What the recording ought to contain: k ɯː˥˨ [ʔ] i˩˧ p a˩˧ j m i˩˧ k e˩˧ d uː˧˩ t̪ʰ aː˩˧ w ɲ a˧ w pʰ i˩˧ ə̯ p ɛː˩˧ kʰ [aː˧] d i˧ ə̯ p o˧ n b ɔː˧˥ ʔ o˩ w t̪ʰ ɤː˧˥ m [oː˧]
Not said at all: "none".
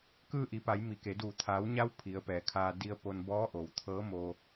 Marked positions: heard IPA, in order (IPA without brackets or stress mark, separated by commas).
ʔ, aː˧, oː˧